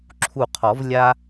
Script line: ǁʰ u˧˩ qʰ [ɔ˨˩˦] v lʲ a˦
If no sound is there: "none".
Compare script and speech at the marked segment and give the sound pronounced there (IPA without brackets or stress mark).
ɔ˨˩˦